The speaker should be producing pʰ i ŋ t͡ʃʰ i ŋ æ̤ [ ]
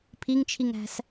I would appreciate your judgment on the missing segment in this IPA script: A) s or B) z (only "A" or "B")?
A